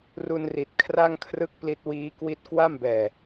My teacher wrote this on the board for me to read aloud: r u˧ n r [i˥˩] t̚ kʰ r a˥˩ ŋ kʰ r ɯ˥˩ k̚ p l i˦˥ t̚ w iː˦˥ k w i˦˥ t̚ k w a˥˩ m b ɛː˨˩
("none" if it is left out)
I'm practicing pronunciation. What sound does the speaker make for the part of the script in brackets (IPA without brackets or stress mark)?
i˨˩